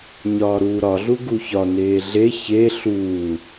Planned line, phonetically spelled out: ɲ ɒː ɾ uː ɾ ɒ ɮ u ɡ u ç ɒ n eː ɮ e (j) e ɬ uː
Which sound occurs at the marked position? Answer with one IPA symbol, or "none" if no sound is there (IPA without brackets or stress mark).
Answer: ç